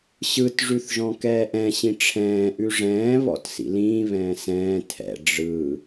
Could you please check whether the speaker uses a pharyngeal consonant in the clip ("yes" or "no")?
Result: no